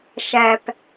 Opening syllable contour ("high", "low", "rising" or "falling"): low